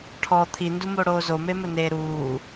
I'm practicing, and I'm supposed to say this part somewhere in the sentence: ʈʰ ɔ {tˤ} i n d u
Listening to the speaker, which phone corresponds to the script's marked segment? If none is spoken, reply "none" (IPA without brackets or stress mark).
t̪ʰ